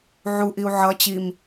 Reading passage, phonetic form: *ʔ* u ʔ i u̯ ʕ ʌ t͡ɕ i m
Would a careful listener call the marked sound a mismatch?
yes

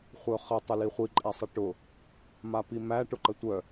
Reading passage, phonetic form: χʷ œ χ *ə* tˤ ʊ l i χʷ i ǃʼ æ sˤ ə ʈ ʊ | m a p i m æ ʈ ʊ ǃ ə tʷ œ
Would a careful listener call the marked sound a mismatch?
no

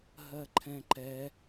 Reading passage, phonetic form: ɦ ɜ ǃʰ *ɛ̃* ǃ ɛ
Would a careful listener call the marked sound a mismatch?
no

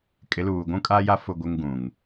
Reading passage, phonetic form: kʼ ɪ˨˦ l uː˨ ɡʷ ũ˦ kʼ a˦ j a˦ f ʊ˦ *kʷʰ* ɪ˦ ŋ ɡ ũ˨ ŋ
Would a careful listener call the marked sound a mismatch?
yes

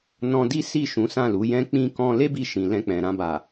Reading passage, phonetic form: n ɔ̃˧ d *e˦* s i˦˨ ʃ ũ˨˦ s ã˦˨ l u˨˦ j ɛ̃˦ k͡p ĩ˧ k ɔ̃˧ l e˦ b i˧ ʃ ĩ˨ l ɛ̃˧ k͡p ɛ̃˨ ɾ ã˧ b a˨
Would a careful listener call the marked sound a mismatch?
yes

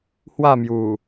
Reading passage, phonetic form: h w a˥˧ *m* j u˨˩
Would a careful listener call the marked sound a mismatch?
no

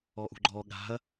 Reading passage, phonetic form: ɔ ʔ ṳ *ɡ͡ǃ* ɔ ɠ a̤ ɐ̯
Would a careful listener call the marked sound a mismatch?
no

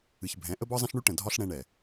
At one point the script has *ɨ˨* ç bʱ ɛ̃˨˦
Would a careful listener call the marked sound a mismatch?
no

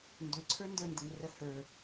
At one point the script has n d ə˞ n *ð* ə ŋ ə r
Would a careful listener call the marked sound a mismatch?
yes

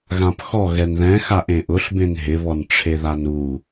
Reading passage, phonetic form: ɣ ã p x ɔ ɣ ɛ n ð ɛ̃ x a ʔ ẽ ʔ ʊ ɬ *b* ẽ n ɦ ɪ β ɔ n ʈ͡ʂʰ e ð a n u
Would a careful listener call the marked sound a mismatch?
no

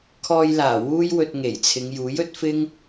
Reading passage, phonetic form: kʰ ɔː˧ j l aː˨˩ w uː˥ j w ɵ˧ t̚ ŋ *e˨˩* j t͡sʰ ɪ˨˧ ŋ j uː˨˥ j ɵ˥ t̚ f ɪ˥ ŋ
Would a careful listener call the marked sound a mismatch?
no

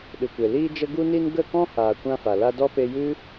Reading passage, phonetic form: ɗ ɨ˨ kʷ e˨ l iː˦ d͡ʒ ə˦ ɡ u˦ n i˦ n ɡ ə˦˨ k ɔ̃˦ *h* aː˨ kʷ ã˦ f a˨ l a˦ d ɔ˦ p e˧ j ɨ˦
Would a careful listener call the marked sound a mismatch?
no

